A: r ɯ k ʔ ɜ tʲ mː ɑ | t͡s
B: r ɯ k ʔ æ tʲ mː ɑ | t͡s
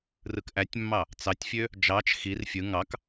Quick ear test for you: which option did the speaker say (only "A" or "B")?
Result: B